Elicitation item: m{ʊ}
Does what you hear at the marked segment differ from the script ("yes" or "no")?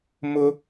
no